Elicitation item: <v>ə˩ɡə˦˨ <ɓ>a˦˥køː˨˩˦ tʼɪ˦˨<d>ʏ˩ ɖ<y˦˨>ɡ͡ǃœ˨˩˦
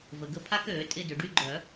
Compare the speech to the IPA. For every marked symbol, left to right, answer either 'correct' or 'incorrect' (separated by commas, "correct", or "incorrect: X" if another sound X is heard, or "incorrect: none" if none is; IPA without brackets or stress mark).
correct, incorrect: pʰ, correct, correct